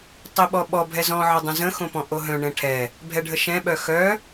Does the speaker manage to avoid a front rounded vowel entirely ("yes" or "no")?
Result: no